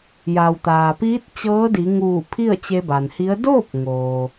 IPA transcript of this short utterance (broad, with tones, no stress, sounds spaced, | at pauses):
j a˩ w t̪ aː˩ p iː˧˥ t̚ t͡ɕ ɤː˧˥ d i˩˧ ŋ uː˧˩ pʰ i˥˨ ə̯ t͡ɕ e˧ b a˩ n h i˧˥ ə̯ d oː˥˨ p̚ ŋ oː˩